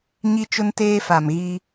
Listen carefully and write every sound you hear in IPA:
ɲi˦t͡ʃʊ˦nteː˦ fa˨m ɣiː˦

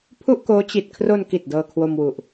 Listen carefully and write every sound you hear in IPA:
pʰu˥˩ʔkoː˦˥ t͡ɕi˨˩t̚ kʰro˧n ki˨˩t̚ dɤː˧kʰwo˧mwu˨˩ʔ

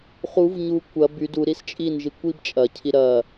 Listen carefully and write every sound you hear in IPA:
χuv ɲu kʷɐ byd u ɾist͡ʃʼin ʒikʷibt͡ʃʼɐ cʰiɾɐ

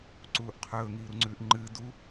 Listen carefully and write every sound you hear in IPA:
ǀuːʔqʰɵː ŋiːɾuŋ͡ǀʉːʔŋ͡ǃɨː du

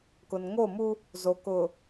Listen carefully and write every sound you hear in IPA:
kʊ˨nŋo˦˨mu˦ | zo˨kʊ˨

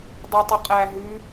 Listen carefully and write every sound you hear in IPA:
dˤʉtˤəqʼæ ɦʉ

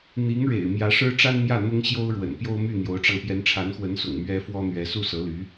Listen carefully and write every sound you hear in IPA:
n̪i˧˥ŋɻḛ˨˩ɪ̯ mjä˧˥ʂɻ̩˥ ʈ͡ʂa˥nmjä˥˩ n̪ʊ˥ŋɕjo˥ʊ̯ɻwə̰˨˩n pjo˥ʊ̯my˥˩n̪jo˧˥ʊ̯ʈ͡ʂɑ˧ŋ pjɛ˧˥nʈ͡ʂʰa˧˥nxwə˧˥nsʊ̰˨˩ŋ mɥɛ˥fwɔ˥ n̪ɥɛ˧˥su˥˩sɤ˧˥ly˧˥

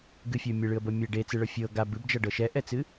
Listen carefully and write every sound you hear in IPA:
ɡɨfʲɤʊ̯ mʲɨɭɨə̯bɤ mʲɛ ɖet͡sɨɭɤ fʲɤ ɡab ɨbd͡ʒʌɖɤ ʃɛʔɛt͡sɨ

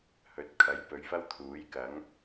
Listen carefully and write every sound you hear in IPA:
hɵ˨˥t̚ kʰɐ˨˥jpɵ˨˧ɥfɐ˥w t̪ʰuː˨˥jkɐ˨˥ŋ

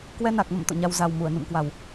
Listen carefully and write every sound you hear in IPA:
kwɛ˧na˨˩k̚mə̰˧˨m t̪o̰˧˨ɲa˧w za˨˩w mu˧˩ə̯nṵ˧˨m kwa˨˩w

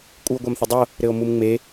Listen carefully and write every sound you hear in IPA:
kʷʼɨo̯ɡʷamθɘdˤo | ɾɘo̯mumŋ͡me

